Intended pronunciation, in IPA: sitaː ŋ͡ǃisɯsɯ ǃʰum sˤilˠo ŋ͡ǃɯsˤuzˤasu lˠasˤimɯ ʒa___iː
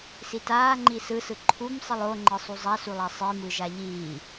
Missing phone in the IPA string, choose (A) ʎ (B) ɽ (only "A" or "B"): A